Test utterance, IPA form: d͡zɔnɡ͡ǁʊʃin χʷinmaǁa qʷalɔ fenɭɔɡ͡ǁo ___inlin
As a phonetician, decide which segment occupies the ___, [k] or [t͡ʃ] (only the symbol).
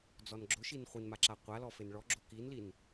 k